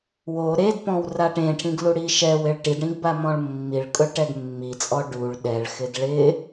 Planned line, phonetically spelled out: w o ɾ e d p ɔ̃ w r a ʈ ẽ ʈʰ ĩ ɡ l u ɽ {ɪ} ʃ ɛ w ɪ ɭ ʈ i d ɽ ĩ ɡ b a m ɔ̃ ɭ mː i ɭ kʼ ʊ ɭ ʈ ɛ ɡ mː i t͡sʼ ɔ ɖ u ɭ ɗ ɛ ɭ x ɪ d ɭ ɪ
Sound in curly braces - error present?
yes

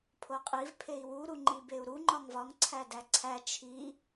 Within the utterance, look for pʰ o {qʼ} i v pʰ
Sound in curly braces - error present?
no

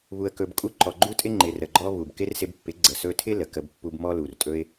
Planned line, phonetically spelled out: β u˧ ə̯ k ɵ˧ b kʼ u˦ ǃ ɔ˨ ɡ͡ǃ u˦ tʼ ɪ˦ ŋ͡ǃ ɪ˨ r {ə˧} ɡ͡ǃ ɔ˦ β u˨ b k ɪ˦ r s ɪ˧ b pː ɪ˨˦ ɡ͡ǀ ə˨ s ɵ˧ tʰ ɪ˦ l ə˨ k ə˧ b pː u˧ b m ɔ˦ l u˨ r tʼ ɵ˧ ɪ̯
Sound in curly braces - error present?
yes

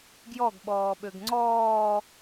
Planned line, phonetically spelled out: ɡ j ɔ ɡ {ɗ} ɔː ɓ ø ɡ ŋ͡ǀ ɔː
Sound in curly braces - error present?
yes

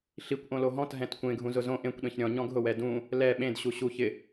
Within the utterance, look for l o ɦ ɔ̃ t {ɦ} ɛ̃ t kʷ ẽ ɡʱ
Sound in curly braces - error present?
no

